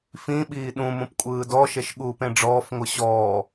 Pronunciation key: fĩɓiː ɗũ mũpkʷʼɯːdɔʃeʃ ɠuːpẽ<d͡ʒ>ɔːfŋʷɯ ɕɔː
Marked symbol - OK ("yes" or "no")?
no